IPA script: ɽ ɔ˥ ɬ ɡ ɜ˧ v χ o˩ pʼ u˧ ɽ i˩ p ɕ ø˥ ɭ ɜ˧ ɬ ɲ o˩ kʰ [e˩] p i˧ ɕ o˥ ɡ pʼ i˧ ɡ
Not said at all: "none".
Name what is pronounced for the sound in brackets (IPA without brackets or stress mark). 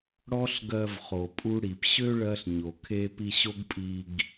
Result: e˧